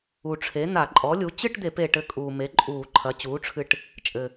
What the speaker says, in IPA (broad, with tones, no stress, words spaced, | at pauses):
u˨˩ʈ͡ʂʰe˩˥ n̪a˧˩˧ǃʼɔ˩˥lʲu˩˥ t͡ɕɨ˥˧ʈd̪e˧˩˧pe˨˩ ʈɘ˧kʼuː˨˩me˩˥ ǃʼuː˧˩˧ ǃʰɐ˩˥ t͡ɕuː˩˥ʈ͡ʂʰɨ˧ʈ | t͡ʃʼɘ˨˩